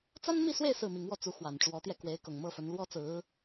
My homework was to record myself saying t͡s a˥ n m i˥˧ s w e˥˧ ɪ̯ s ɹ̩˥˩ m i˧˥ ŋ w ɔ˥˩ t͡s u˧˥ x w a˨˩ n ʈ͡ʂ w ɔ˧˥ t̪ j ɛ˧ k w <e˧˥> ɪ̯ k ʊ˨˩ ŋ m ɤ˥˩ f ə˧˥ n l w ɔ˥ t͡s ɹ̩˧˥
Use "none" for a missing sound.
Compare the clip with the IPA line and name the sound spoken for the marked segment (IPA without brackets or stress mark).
e˧˥